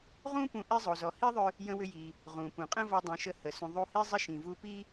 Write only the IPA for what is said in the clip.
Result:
ʁ ũ˥ p ũ˧ ʔ i˥ zˤ o˩ z ɔ˩ h i˥ ðˤ ʏ˧ | j ə̃˧ w ʏ˧ j i˩ | ʁ ũ˩ p ũ˩ qʼ ə̃˥ v ɔ˧ dˤ ĩ˩ ʃ ə˧ h ə˩ s ũ˩ ðˤ u˧ h i˥ zˤ ə˥ ʃ ĩ˩ v u˧ p i˥

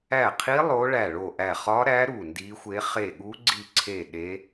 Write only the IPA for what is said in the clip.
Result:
æ˦˨ qʰ i˦˥ lˠ o˦˥ ɭ æ˦˨ ɭ o˦˨ ʔ æ˦˨ χ ɒ˦˥ ɾ æ˦˥ ɾ u˦˨ n d i˦˥ xʷ e˦˥ χ e˦˨ ɠ u˦˥ ɡ͡ǀ i˦˨ ǀʰ e˦˨ ɗ e˦˥

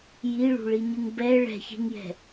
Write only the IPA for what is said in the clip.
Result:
j i ɭ ṳ ɭ i ɲ ɯ ŋ b ɛ ɭ ɛ̤ ç e̤ ŋ j ɛ̤

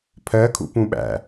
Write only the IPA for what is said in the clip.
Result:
pʰ ɜ kʰ ṵ p ũ ɓ æ̰

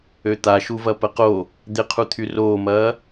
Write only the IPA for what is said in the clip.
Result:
ø t̪ a ʃ u v ɐ p ə q o | d̪ ɪ qʰ u t̪ʰ y r oː m ɐː

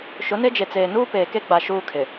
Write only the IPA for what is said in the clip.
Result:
ʃ ʊ˨˦ n e˦ d͡ʒ e˨ t͡s eː˨ n uː˦ p eː˨ k e˦ ɡ͡b a˨ ʃ uː˦ kʰ ɪ˨

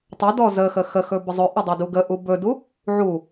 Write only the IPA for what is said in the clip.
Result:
tˤ ə d ɔ z ə x ə x ə x ɵ b ə zˤ ɵ ʔ ə dˤ ɛ d u ɡ ə ʔ u b ɵ d u | ʕ u

